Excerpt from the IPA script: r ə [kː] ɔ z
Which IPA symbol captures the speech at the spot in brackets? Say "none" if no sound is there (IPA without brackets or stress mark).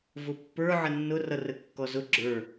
kː